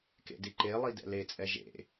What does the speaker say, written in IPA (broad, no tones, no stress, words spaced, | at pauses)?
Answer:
kḛdiǃelˠi dɛ̰let͡sʼɛ ʒḛ